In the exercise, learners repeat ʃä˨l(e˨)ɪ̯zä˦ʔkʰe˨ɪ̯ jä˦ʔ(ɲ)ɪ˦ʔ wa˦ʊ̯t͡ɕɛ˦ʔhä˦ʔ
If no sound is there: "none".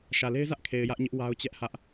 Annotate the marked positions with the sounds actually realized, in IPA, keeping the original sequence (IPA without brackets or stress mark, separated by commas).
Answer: e˦, ɲ